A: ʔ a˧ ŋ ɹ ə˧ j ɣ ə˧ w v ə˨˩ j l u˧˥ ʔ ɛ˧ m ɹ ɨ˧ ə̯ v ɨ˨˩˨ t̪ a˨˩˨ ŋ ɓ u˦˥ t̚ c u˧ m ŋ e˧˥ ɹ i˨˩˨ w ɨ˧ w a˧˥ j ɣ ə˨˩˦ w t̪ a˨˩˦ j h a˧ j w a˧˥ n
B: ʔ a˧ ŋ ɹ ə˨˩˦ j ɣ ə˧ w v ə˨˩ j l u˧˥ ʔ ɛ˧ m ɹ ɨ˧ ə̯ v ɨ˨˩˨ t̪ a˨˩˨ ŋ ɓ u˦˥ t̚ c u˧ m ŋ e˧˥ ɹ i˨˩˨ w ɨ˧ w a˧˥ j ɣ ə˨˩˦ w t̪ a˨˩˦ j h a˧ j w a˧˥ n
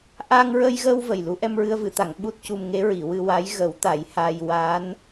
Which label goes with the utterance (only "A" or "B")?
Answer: A